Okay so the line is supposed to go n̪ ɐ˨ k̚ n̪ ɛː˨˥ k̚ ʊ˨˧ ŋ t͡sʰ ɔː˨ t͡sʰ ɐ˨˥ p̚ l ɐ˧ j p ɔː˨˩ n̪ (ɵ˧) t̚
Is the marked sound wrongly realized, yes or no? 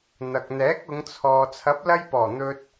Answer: no